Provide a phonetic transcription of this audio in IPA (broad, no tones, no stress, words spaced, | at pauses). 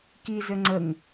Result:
kizɘ ŋ͡ǀəŋ